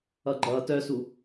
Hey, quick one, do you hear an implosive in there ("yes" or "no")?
no